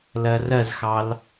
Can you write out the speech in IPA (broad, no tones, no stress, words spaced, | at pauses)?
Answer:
lɜrɜzxɑl